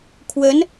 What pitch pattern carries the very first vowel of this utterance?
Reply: rising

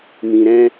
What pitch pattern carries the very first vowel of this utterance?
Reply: low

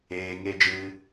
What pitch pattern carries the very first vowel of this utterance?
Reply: low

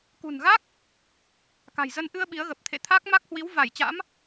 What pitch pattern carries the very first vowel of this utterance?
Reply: low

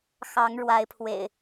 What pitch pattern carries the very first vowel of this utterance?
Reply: rising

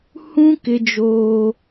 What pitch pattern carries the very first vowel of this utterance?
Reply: high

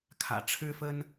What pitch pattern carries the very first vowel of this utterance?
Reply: low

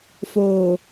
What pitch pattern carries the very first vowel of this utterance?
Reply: low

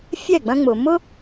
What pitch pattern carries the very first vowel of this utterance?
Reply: falling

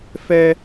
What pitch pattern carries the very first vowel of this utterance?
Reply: high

